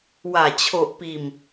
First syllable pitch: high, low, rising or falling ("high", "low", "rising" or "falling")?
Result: low